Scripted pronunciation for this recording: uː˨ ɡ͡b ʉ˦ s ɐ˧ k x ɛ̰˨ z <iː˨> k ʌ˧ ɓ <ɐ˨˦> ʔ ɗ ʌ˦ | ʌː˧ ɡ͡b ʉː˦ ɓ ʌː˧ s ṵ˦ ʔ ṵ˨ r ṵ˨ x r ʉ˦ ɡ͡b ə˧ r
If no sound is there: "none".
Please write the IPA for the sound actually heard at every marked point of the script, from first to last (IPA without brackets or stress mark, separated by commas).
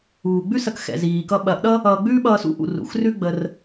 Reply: iː˨, ɐ˨˦